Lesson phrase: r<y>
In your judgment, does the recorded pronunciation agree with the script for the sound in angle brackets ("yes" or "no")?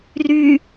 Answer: yes